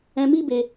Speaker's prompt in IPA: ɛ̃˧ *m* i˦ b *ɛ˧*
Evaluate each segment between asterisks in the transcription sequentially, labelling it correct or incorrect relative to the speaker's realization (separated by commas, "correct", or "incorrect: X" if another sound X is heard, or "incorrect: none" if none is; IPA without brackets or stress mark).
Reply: correct, incorrect: e˧